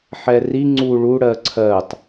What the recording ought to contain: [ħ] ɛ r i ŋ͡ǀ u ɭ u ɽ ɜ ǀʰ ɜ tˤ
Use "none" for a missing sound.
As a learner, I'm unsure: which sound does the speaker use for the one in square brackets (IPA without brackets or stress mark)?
ħ